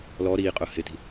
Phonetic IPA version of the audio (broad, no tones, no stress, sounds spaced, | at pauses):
l ɔ ɾ iː qʼ ʊː h ɪ t i̤